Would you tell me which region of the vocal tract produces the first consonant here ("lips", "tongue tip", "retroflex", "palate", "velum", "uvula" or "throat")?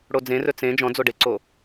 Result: retroflex